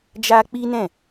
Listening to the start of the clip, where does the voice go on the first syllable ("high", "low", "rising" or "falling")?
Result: high